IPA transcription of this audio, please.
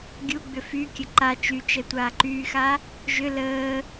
ɡʲu ɡ͡bʏfykʲə ǃa t͡ʃyt͡ʃɛ tʷaːǃyːxa | ʒʏ ləː

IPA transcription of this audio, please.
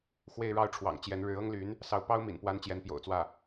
xwe˥˧ɪ̯ɻɑ˥˩ʊ̯ʈ͡ʂʰwɑ̰˨˩ŋ t͡ɕjɛ˧˥n ɻɻ̩˧˥ ɤ˥ŋly˧˥n | sɑ˧˥ʊ̯pɑ˥ʊ̯mḭ˨˩npwa˧˥n t͡ɕjɛ˧˥npjo̰˨˩ʊ̯t͡swä˥˩

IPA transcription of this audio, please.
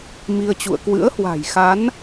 mi˧ə̯t͡ɕṵ˧˨ə̯ kwɨ̰˧˥ə̯hwa̤˨˩jxa˨˦n

